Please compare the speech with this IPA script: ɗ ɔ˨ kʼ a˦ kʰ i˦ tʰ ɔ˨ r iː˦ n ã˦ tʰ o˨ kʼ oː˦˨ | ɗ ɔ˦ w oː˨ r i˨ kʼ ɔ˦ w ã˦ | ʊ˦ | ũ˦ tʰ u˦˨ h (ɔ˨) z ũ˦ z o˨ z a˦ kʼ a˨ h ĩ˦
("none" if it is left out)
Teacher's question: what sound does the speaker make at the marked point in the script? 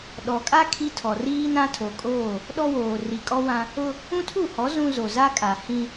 ɔ˨˦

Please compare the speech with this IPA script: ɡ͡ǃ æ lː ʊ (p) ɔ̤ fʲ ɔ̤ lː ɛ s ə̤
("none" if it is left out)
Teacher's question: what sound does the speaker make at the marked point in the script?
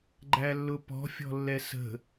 p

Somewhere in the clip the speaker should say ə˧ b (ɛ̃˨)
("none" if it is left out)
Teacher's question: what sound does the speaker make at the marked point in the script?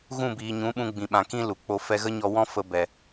ɛ˨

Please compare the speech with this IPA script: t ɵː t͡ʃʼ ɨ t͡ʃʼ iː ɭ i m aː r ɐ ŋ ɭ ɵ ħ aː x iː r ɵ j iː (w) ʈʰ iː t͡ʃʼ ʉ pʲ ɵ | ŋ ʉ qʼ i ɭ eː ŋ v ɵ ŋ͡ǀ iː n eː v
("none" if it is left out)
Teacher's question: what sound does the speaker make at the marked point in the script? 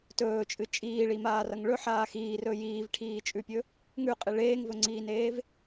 v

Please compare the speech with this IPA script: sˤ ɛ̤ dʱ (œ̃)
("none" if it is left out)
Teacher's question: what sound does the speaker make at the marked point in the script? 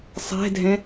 ɛ̃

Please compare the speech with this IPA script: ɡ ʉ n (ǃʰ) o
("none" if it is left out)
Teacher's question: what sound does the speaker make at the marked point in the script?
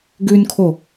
kʰ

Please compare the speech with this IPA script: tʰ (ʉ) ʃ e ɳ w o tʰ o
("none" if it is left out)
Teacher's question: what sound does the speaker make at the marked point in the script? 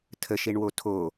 ə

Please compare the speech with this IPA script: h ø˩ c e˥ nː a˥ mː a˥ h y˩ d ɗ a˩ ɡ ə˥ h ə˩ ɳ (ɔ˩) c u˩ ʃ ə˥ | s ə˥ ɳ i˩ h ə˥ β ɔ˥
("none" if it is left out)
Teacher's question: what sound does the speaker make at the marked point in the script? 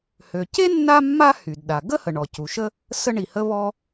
ɔ˩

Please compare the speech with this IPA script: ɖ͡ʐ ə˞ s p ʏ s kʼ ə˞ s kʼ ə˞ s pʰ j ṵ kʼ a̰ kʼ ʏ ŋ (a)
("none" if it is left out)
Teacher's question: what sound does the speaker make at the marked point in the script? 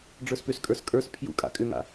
a̰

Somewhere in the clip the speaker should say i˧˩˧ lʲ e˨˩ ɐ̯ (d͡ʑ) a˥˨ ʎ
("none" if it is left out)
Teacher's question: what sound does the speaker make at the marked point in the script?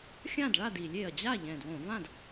d͡ʑ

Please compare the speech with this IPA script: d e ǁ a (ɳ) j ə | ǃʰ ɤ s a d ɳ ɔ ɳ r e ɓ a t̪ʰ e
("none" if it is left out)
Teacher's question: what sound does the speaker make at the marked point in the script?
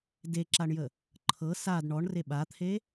ɳ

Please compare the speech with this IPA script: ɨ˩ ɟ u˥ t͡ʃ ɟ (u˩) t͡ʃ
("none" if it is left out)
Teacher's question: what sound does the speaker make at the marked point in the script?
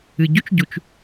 u˩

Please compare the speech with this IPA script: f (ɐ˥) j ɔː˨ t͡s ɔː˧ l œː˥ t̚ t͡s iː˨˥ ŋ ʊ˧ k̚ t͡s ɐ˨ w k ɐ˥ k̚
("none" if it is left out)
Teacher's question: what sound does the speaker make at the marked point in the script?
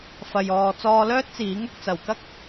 ɐ˨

